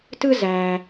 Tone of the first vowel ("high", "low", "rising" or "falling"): high